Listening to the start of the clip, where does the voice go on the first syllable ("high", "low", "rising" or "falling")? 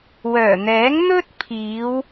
low